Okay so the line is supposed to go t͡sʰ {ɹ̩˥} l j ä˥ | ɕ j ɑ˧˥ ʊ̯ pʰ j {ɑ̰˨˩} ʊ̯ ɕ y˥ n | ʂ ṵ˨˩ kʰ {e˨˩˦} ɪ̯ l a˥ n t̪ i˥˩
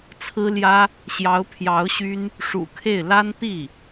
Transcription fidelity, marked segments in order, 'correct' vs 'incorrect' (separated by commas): correct, incorrect, incorrect